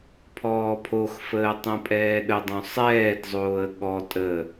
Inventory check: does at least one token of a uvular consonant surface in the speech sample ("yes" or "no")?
no